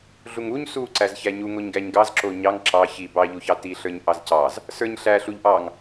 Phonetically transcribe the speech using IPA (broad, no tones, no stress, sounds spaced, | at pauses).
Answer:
ɮ u ŋ u ɲ s u ǀ æ z ç æ ɲ u ŋ o ɲ ɡ æ ɲ ɡ ɑ z ǁ o ɲ ɑ ŋ ǁ ɑ ç i b ɑ ʎ u ç ɑ t i ɬ ə˞ ɲ ʔ ɑ z c ɑ z | s ə˞ ɲ ɬ æ ɬ u ʎ ʔ ɑ ŋ